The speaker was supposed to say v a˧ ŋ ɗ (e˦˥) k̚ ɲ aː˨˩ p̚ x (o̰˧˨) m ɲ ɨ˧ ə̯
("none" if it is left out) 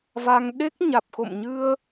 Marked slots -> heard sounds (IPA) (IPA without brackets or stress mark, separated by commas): e˦˥, o̰˧˨